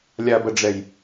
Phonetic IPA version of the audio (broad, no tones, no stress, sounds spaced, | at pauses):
lʲ a b ɐ ɖ͡ʐ ɛ j